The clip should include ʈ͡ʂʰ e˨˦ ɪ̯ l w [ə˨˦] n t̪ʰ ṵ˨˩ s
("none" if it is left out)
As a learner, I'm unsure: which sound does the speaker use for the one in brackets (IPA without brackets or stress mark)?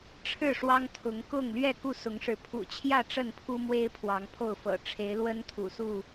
ə˦